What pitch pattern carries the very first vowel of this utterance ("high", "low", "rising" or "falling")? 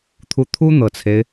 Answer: rising